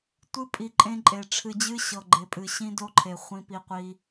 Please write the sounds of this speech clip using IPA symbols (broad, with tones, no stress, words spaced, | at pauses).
tʷɨ˦pʼi˨ǃʼẽ˦ǃʼe˨ ʈ͡ʂʰɨ˨d͡ʑɨ˦ ɕɤ˨ɡ͡ǃe˨pʼɨ˨ ɕĩ˦do˦ǃʰe˨ χʷĩ˦pi˦qʷi˦